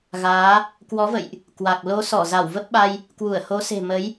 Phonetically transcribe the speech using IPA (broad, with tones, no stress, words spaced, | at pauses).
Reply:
ɣaː˨˦ | kwɔ˨˦və̰˧˨jʔ | kwa˨˩k̚ lo˨˦sɔ˧˩ za˧˩wvə˦˥p̚ɓa˧j | kwu˧˩ə̯ho˨˦se̤˨˩ mə˨˦j